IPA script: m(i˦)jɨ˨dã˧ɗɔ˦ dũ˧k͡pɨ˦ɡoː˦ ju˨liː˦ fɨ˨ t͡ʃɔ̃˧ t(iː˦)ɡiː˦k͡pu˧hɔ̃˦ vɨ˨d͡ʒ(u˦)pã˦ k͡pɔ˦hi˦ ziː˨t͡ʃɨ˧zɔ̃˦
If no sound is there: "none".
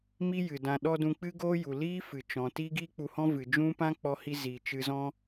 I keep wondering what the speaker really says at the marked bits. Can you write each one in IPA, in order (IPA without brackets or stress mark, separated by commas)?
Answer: i˦, iː˦, ũ˦